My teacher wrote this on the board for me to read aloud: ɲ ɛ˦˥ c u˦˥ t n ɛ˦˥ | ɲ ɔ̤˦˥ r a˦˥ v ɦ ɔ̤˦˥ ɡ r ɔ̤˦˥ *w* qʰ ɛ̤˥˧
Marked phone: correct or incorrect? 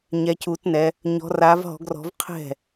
incorrect